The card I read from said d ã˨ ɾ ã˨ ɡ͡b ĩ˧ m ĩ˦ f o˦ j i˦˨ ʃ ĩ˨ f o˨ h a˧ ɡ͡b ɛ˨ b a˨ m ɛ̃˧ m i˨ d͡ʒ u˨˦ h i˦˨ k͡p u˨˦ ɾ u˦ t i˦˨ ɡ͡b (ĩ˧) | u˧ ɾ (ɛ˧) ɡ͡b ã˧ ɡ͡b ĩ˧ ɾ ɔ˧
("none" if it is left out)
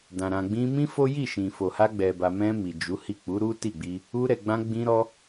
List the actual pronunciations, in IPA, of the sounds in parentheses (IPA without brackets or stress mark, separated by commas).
i˧, ɛ˨